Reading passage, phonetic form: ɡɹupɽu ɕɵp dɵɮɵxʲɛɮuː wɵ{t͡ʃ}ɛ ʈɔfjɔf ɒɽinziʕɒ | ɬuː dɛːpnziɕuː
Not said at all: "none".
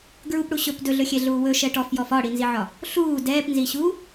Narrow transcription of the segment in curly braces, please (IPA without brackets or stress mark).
ʃ